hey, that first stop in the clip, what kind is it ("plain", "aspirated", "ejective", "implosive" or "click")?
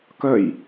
plain